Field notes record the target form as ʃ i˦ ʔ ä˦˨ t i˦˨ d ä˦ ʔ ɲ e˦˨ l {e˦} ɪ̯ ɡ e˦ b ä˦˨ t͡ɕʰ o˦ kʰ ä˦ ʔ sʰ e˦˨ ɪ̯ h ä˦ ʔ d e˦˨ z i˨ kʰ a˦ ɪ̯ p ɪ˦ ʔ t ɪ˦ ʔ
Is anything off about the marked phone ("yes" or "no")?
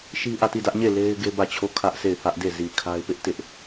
no